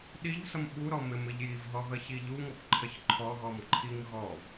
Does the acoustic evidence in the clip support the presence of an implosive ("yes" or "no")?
yes